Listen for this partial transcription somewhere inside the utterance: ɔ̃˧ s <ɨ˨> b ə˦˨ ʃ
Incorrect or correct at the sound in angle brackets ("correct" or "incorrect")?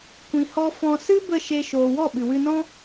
incorrect